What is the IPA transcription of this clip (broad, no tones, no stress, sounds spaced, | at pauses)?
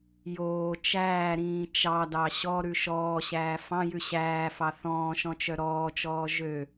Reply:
j oː t͡ʃ æː ɾ ĩː t͡ʃ ɑ d ɑ ɕ ɔ ɾ ʉ ʃ ɔː ɕ æː f ɑ̃ j ʉ ɕ æː f ɑ θ ɔ̃ː ʃ ɔ̃ t͡ʃ œ ɾ ɔː t͡ʃ ɔː ʒ ø